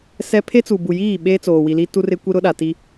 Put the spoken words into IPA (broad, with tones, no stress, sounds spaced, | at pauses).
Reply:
s ɛ˦ pʰ e˦ t͡s u˨ b u˨ j iː˦˨ ɓ eː˦ t͡s oː˨ w i˨ l i˦ t u˦ r ɪ˦ kʷ i˦ ɾ ʊ˦ ɗ a˨ t i˦